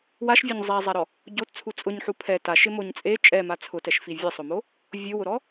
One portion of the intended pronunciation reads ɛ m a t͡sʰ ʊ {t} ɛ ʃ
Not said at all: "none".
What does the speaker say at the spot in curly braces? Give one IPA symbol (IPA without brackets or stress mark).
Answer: t